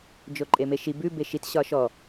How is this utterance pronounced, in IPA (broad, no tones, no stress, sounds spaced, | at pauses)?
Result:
d͡ʒ o ǃʼ e m e ʃ i b ʉ b e ʃ i t ɕ ɒ ʃ ɔ